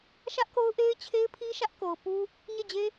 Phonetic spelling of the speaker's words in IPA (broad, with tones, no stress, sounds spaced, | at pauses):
ʃ ä˦ ʔ k o˦ ʊ̯ ʔ e˦ ɪ̯ t͡ɕʰ e˦ ɪ̯ pʰ i˦ ʃ ä˦ ʔ k o˨ ʊ̯ p u˦ | ɲ e˦˨ d͡ʑ e˦